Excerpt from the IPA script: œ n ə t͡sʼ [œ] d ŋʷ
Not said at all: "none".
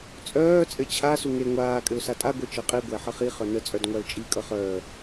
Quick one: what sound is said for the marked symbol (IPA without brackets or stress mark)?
œ